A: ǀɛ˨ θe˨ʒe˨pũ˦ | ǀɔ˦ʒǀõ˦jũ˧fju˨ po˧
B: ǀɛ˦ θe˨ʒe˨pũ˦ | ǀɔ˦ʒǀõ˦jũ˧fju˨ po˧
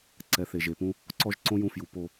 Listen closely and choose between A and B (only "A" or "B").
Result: A